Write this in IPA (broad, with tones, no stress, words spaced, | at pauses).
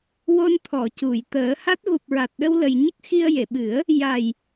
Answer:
wo˧nt̪ʰɔ˨˩˨ cu˨˩˨j t̪əː˨˩˦ha˦˥t̚ ɣu˨˩p̚ɹa˨˩t̚ɗə˧w lə˧j ɲə˦˥k̚xi˧ə̯je˨˩˨ɓɨ˨˩˦ə̯ | ja˨˩j